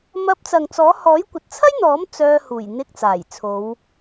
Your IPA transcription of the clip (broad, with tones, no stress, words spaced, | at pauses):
mɐ˧p̚t͡sɐ˨ŋt͡sɔː˨˥ hɔː˨˥jkʷɐ˨t̚t͡sʰɐ˥jn̪ɔː˨˥m t͡sœː˧huː˨˩j n̪ɪ˧k̚ t͡saː˨˩jt͡sʰo˨˧w